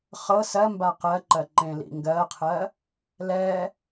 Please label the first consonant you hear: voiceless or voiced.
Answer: voiceless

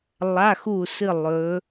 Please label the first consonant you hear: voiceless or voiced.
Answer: voiced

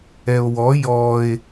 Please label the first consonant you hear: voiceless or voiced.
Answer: voiced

